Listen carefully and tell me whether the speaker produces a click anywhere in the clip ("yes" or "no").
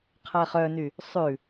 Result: no